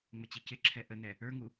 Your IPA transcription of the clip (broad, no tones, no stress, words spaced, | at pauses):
ŋ͡mət͡ɕicɪǁʰɛ ʔənɛ | ə˞ŋu